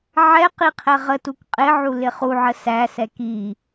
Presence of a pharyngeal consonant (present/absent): present